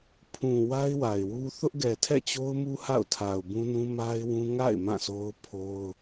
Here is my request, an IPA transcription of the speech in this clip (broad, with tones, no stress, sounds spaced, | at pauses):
pʰ ũ˨ w a˦ ɪ̯ w a˨ ɪ̯ w u˦ θ ʊ˦ ʔ ɡ ɛ˨ tʰ ɛ̰˦˨ t͡ɕ o˦ ʊ̯ m u˦ h a̰˦˨ ʊ̯ tʰ a˨ ʊ̯ b ũ˦ n ũ˦ m a˦ ɪ̯ w ũ˦ ŋ a̰˦˨ ɪ̯ m ã˦˨ s o˦ ʊ̯ pʰ o˦ ʊ̯